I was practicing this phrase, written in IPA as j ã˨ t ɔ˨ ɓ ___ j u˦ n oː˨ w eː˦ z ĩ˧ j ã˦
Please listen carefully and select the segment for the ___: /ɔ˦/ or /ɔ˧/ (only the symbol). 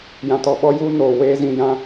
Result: ɔ˦